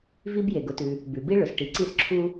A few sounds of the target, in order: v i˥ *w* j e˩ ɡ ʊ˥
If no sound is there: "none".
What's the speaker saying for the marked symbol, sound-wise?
b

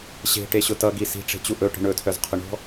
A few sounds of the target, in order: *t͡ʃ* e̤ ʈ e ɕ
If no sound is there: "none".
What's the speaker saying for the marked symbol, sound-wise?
ɕ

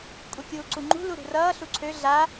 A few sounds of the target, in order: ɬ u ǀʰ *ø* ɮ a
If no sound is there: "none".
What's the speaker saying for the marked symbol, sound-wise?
ø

